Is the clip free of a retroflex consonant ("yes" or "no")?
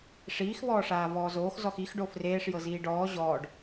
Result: no